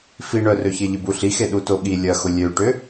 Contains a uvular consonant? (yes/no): no